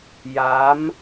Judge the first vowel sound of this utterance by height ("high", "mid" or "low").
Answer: low